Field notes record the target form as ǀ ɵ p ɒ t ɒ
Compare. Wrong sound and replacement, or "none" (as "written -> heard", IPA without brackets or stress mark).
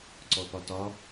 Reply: ɵ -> ɔ